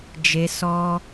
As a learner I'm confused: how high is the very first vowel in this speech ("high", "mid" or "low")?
mid